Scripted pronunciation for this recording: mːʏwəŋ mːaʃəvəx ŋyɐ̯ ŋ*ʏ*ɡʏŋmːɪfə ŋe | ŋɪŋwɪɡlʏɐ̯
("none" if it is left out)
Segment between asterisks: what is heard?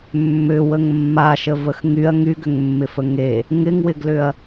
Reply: y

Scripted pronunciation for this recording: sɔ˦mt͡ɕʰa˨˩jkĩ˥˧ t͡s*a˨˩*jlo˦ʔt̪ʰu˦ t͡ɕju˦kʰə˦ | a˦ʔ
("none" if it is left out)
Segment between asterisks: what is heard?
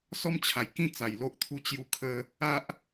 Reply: a˨˩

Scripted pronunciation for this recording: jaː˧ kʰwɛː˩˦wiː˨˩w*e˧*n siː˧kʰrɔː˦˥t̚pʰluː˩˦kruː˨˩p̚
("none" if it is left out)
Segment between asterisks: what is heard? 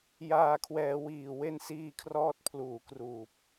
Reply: e˧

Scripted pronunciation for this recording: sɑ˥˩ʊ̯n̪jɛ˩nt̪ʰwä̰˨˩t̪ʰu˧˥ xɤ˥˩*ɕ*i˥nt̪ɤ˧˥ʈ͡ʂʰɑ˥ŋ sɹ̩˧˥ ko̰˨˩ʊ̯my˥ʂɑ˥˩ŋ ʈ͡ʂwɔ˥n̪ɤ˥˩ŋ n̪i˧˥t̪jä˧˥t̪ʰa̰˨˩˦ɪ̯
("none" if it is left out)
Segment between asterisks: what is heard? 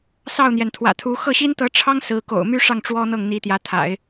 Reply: ɕ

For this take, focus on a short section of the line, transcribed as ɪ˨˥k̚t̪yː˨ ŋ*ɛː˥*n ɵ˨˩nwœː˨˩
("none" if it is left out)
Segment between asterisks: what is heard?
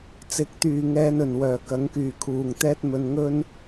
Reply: ɛː˧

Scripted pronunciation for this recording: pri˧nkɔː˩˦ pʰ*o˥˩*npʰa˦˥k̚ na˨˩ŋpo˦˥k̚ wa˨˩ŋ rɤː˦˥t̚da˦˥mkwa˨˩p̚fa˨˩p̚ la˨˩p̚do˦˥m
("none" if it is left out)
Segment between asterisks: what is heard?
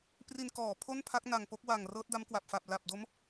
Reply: o˥˩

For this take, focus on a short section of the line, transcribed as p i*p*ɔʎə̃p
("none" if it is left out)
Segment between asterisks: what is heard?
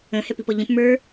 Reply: p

